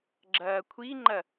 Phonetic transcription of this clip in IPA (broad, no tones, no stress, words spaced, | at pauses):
ɡ͡ǁɐːkʷʰiŋ͡ǃɐ